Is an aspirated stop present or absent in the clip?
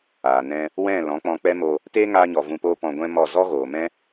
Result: absent